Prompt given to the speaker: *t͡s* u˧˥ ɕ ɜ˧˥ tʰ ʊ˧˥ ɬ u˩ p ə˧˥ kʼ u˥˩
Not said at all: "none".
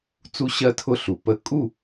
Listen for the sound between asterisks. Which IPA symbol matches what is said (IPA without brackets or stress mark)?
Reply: t͡s